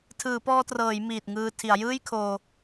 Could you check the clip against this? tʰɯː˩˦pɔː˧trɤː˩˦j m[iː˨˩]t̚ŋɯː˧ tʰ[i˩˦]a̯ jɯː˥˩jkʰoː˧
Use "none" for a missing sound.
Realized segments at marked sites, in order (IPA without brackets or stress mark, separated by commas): iː˨˩, i˩˦